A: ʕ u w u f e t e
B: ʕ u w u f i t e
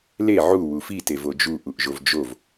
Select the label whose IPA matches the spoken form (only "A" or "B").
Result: B